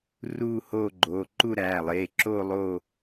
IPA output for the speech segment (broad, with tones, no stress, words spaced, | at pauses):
ruː˥˧hoː˥˧ɡ͡ǃoː˩˧˩ ǃu˥˧ɾæː˩˧˩lˠeː˩˧˩ǁoː˥˧ lˠo˥˧